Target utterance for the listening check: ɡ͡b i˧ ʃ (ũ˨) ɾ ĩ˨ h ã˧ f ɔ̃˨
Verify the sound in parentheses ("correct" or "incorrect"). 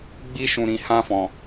correct